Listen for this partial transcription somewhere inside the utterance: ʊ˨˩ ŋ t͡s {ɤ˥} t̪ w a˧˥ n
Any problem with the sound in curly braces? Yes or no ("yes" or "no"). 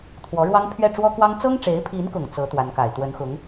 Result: yes